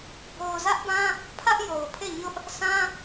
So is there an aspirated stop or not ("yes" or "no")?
yes